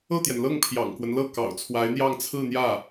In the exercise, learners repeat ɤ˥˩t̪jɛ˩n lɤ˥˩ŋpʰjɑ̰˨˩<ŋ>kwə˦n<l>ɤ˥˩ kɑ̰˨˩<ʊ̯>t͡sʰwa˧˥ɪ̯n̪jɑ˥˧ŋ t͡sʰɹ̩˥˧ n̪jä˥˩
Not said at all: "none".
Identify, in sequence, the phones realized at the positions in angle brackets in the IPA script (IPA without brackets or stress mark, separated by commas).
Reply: ŋ, l, ʊ̯